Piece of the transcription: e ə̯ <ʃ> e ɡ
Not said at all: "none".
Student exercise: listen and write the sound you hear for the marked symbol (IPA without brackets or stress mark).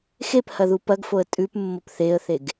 θ